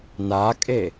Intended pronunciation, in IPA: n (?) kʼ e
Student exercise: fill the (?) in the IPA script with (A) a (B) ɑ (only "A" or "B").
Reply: A